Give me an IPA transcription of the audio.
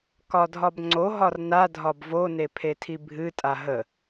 kɒdʱɒbŋ͡ǀoɦɒr nadʱɒb vone pʰetʰibʱɨtʼa ɦə

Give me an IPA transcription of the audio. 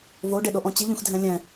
voɖeɗoʔɔ̃ t͡ɕiʎũxdʱɛ̃ lʲɛ̃

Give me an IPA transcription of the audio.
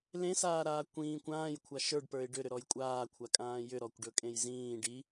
lẽsaːɾaː kʷĩːkʷ ãːjkʷʰa ʃə˞ɖpə˞ɪ̯ ɖʏɾʏɾɔj kʷʼaːkʷʰakʼãː jʏɾɔkʷɖɵkʼẽj zĩː ɖi

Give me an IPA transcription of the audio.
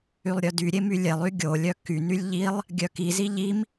ylˠɾʲœdyɾʲe mylʲelˠy ɡʲolʲœ kynylʲ ʎilˠ | ɡʲœkizi ʎim

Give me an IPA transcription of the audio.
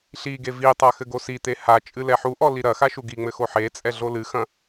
ɬiɡe vitˤa xɘɡosit̪e ha t͡ʃʼɨlɛħuʔɔ liɾɐxa ʃuɡiŋ͡mɘ xoħet͡sʼɛ ɮolɨxɐ̃

